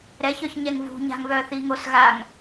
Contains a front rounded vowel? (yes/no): yes